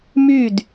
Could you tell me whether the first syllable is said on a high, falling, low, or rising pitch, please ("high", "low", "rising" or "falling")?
falling